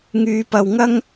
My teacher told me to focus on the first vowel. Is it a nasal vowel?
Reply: no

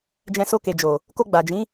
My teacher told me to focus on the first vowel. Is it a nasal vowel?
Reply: yes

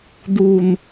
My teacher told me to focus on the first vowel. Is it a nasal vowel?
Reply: no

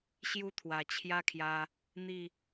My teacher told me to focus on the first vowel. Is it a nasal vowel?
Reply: no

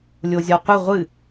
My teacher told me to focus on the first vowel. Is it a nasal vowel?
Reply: no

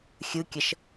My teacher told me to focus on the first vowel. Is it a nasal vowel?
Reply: no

